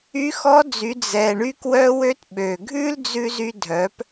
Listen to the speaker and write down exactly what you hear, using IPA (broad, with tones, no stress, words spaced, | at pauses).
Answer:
y˧˥xɔ˧˥d͡zy˩˧ d͡zɛ˩ ɳy˧kwœ˧wø˧t ɓø˩ ɡʱʉ˥ld͡zʉ˧zy˧ dʱœ˩˧p